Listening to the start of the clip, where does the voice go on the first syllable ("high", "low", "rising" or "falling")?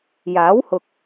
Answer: rising